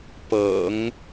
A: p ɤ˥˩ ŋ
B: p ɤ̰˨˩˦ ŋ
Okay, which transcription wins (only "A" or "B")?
B